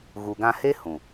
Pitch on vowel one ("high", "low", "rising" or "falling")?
low